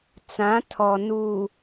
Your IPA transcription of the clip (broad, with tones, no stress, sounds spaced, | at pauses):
t͡s ã˨˦ tʰ ɔ˨ n u˨